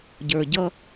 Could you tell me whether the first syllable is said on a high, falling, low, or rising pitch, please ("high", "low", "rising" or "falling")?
low